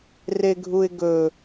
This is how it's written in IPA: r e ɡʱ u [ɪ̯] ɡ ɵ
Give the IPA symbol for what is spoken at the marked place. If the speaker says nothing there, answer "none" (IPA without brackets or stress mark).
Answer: ɪ̯